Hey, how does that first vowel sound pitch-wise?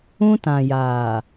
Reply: high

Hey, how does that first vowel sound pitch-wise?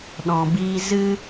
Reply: low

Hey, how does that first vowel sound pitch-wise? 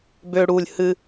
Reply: high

